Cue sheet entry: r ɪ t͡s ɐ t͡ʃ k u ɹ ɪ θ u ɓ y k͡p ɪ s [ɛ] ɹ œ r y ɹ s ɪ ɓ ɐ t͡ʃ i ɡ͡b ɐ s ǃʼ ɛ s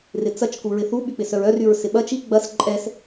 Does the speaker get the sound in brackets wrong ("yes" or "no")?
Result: yes